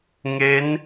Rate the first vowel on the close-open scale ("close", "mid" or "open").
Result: mid